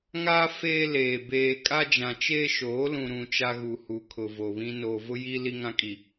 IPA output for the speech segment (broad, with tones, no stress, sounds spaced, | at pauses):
ŋ a˦ f eː˦ l eː˨ b eː˨ kʼ a˦ d͡ʒ ã˨ t͡ʃ e˦ ʃ oː˨˦ l ũ˨ ɾ ũ˨ t͡ʃ a˦ ɣ u˨ h u˨ kʰ ʊ˨ v o˨ β ĩ˦ n oː˨ v ʊ˦ j i˦ l i˦ ŋ ã˦ kʼ i˨